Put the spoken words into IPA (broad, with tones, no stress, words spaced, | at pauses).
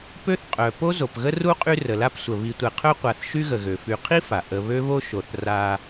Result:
pø˦θqʼœ˩ po˥zo˩pɣə˥ ru˥qʼy˦ rə˩la˦psʷə˩ βi˨ tʷɛ˨qʰœ˥ qʷa˨θʃy˥ɣə˩ɣø˩ fy˨qʰi˥fa˩ ʔə˨ βø˥βo˥ʃo˨θ ra˦